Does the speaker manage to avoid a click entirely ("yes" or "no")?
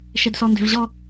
yes